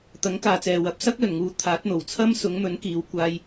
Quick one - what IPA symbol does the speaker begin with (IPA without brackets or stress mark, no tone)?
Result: t̪